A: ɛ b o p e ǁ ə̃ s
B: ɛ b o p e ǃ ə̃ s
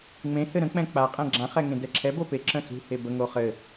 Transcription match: A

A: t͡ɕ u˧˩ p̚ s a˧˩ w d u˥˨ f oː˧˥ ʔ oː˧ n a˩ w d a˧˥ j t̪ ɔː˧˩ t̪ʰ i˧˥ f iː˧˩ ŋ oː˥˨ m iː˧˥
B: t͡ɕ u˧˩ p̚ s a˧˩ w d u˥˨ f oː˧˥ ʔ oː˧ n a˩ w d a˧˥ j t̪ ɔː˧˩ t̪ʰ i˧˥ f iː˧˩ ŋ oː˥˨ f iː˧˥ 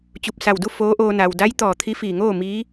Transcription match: A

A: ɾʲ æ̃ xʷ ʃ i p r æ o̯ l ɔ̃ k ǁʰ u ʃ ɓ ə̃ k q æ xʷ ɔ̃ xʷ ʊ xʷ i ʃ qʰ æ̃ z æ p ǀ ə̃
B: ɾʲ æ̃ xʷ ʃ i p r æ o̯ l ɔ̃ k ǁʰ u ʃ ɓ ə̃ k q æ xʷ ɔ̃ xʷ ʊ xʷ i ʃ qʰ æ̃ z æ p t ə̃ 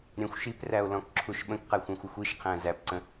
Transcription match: A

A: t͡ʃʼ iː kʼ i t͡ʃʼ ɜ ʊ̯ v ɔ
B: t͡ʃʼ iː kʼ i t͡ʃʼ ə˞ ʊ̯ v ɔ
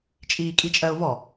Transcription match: A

